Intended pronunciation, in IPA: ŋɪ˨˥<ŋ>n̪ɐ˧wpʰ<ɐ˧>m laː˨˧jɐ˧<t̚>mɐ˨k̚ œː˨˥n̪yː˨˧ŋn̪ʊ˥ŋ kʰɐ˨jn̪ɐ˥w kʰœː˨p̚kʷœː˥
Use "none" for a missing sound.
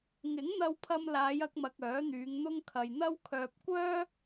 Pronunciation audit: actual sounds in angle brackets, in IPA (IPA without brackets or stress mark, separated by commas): ŋ, ɐ˧, k̚